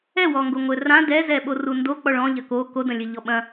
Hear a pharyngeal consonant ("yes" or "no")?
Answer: no